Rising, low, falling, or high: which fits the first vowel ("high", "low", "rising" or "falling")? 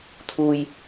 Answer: low